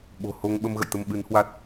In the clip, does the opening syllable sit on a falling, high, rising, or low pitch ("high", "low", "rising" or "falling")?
low